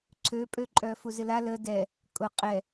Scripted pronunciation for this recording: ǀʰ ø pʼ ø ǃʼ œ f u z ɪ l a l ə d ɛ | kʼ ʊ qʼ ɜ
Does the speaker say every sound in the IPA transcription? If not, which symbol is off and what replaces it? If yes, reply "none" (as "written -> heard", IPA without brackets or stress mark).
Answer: ɜ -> ɛ